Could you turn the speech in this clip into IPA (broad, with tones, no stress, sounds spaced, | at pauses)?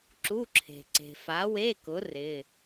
ǁ u˧˥˧ ǁʰ e̤˨ ǀ e̤˨ f a˨˥ w e˧˥˧ k ʊ˨˥ r ɪ˧˥˧